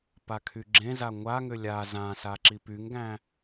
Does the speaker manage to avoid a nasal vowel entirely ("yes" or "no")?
no